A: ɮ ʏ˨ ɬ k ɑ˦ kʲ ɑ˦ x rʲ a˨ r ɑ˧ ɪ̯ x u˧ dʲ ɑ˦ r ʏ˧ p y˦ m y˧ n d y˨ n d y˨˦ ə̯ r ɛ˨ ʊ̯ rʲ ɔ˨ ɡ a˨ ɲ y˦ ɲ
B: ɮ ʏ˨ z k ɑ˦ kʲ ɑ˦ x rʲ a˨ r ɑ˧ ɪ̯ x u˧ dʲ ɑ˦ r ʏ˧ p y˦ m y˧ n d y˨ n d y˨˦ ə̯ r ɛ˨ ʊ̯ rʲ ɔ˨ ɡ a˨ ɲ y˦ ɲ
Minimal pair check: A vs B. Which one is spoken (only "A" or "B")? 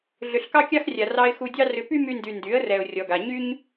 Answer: A